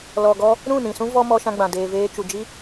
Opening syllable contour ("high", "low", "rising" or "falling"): low